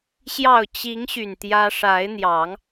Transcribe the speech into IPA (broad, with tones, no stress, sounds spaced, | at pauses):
ɕ j ɑ˥˨ ʊ̯ t͡ɕ i˨˦ ŋ ɕ y˨˩ n t̪ j ä˦ ʂ a˨˦ ɪ̯ n̪ j ɑ˨˦ ŋ